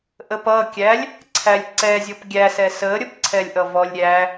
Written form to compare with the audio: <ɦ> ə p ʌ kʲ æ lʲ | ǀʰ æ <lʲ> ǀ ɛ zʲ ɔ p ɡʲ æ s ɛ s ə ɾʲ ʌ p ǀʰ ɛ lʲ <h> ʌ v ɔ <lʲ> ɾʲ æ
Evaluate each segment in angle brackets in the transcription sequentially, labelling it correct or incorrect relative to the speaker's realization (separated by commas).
incorrect, correct, incorrect, correct